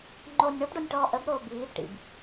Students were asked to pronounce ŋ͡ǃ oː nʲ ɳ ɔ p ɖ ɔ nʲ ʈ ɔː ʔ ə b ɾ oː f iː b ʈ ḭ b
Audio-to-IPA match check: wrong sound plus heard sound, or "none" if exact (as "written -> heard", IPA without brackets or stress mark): f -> b